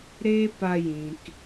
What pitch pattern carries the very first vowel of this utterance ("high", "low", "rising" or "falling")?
high